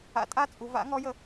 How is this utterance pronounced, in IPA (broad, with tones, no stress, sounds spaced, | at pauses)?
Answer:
a̰˨˥ tʼ a˥ t͡sʼ u˩˧ v a̰˨˥ ŋ ɔ˨˥ j ə˩˧